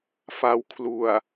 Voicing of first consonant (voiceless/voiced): voiceless